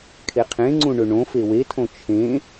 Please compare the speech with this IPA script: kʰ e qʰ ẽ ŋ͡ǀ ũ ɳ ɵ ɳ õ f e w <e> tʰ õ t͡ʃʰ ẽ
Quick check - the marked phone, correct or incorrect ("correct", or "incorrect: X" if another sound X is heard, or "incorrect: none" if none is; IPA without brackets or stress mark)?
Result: correct